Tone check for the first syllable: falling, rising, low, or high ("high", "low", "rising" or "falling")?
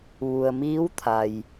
low